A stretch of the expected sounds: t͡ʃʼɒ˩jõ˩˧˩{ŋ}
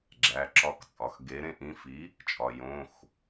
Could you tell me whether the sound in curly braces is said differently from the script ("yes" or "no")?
yes